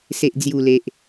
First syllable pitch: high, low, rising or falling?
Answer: low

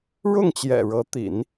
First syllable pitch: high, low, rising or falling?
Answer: falling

